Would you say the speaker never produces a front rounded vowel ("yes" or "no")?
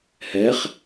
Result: yes